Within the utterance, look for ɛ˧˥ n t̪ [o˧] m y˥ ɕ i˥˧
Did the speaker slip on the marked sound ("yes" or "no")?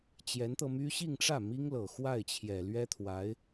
yes